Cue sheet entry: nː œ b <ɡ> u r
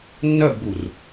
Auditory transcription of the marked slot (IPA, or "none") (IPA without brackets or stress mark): ɡ